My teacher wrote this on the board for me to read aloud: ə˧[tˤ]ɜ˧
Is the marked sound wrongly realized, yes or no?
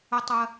no